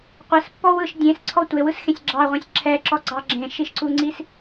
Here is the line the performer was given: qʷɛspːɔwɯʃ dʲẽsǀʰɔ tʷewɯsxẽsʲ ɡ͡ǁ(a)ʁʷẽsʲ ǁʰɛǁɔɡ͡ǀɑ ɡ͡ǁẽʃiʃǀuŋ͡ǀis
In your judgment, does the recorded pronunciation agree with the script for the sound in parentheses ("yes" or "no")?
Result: no